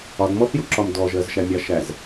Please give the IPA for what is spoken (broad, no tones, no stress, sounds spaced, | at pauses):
ɒ d m ɔ θ j u ǁ ɒ m d ɔ ʒ ɜ z ʃ æ mʲ ɑ ʃ æ z